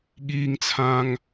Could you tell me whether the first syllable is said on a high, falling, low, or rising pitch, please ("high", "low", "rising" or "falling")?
high